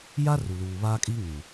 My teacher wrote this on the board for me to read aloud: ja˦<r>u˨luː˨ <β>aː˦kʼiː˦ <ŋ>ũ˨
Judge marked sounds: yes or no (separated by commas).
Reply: yes, yes, yes